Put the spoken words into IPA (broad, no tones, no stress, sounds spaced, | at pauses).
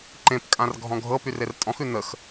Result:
ǃ ẽ p kʼ ã r ɡʱ ɔ̃ ɡʱ ɤ p y r e r tʼ ɔ̃ x ʉ n ə x